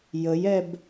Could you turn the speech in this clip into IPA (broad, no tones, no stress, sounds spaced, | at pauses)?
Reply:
j ə j ɛ b